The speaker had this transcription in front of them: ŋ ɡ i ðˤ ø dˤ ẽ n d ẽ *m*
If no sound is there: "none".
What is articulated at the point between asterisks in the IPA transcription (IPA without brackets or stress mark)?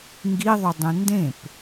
p